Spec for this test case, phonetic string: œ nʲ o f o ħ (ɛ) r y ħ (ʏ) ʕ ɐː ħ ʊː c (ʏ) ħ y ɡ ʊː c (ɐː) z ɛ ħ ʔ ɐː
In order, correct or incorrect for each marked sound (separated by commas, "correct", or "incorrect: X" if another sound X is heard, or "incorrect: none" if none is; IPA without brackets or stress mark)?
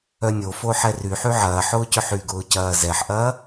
correct, incorrect: y, correct, correct